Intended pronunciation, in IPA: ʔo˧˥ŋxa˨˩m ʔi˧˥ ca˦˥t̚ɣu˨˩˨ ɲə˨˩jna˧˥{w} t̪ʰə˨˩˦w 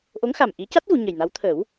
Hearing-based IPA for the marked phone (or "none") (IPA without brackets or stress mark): w